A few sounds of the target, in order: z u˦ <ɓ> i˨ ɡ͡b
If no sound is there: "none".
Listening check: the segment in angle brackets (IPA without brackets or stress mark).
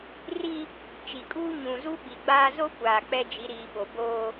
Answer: ɓ